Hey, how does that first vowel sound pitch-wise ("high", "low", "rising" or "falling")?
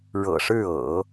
low